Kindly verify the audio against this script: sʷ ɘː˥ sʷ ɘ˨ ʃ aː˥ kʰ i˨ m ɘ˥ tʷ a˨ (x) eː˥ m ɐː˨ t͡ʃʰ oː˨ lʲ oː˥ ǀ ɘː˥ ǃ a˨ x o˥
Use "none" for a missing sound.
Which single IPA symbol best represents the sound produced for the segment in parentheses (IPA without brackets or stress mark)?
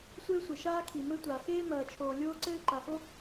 x